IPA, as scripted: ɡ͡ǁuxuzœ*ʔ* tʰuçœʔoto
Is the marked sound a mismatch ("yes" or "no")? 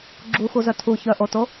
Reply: yes